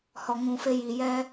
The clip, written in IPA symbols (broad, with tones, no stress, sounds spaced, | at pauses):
h ɔ˨ ŋ ũ˨ f e˧ j i˨ j ɛ˦